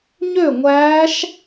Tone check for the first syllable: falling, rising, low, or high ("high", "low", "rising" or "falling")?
falling